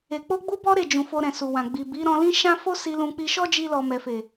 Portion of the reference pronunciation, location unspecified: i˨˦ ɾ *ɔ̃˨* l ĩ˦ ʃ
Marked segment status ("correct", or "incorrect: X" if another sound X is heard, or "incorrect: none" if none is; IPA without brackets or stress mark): incorrect: ɔ̃˧